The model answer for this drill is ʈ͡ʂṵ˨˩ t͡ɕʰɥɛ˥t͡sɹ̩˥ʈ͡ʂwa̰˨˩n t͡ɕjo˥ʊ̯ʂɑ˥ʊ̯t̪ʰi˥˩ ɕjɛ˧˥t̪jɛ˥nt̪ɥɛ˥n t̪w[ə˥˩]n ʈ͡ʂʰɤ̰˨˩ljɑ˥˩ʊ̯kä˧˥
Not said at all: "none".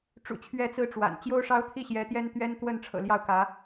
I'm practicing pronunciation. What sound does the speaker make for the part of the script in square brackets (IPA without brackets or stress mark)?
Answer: ə˥˩